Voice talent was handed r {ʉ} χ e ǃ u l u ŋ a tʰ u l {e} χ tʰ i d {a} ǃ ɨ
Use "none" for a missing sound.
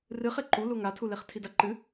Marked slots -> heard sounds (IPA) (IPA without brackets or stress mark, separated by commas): ɨ, e, a